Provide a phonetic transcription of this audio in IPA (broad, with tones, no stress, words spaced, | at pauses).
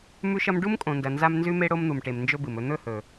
mʉ˦ʃɐ˦m ɖu˦mkʼõ˨ndɐ˨ nza˦m nzʉ˦me˦ ɽo˦mn̪u˨mʈe˨m nd͡ʒɵ˦bɨ˨mɵ˦ n̪ɵ˦˨hɵ˨